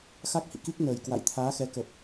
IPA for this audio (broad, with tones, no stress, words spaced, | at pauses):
xa˦˥k̚hḭ˧˨ki˦˥k̚ nəː˨˩jkwa̰˧˨j t̪ʰaː˨˦xɛ˨˦kə˨˩p̚